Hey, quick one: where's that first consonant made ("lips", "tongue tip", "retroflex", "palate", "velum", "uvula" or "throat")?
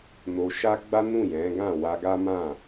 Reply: tongue tip